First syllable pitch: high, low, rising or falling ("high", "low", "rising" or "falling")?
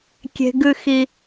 low